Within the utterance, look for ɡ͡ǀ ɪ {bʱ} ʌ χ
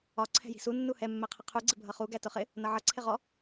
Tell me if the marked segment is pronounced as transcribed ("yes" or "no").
yes